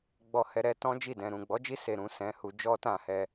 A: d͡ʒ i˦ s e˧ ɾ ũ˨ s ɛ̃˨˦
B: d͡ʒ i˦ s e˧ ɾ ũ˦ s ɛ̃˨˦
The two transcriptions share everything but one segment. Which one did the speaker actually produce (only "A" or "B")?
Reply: A